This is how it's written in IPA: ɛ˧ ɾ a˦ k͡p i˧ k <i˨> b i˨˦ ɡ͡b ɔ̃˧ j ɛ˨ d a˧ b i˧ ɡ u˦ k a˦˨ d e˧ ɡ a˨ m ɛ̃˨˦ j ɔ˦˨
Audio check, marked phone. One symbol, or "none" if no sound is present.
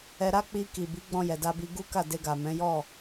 i˨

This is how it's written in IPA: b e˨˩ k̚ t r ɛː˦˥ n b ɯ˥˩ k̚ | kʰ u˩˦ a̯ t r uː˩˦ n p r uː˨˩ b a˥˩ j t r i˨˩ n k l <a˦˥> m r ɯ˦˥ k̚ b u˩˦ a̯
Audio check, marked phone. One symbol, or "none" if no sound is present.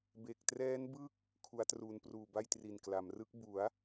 a˩˦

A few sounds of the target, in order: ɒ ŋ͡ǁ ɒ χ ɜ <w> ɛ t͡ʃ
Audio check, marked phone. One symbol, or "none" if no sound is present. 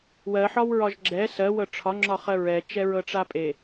ɹ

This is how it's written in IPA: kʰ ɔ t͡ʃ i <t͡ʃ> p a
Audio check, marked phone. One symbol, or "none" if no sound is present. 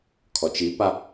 none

